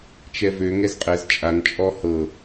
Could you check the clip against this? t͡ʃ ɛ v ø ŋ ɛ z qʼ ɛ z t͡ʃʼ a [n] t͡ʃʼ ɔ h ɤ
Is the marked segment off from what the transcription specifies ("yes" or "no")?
no